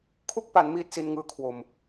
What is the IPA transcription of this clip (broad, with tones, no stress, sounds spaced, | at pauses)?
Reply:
kʰ u˥˩ k̚ p a˩˦ n m iː˥˩ t̚ s i˧ n ŋ ɯː˦˥ kʰ w o˨˩ m